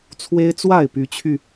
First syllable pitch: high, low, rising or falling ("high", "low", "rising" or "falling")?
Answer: high